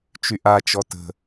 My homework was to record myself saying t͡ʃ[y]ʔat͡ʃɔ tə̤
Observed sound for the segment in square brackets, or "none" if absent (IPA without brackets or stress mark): y